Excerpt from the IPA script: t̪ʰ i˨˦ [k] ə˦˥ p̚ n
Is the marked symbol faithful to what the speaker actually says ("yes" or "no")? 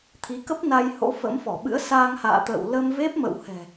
yes